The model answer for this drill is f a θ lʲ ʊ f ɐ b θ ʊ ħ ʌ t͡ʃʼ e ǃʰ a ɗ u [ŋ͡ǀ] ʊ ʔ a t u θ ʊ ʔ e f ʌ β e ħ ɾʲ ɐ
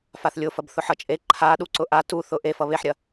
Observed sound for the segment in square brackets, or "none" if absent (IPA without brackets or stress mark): ǀ